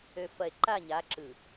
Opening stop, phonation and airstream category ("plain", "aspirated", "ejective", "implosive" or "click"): click